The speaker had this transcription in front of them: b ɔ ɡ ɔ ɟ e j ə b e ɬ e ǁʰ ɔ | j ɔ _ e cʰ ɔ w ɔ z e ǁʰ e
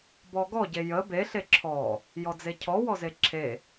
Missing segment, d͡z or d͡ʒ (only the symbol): d͡z